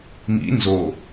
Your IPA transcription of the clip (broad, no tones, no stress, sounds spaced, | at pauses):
m ḭ n z o